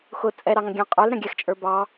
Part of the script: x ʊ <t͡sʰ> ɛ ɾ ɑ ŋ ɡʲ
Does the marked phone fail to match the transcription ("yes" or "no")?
yes